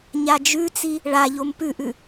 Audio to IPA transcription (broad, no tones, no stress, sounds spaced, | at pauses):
ɲ a d͡ʒ ʉ t͡s i | ɭ a ʎ o m p ʉ ʔ ʉ